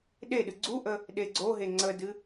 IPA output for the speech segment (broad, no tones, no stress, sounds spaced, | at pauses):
ɗ e ɗ ɨ ɡ͡ǀ u ʔ ə | ɗ e ɡ͡ǀ o ɦ e ŋ͡ǀ ə d ɨ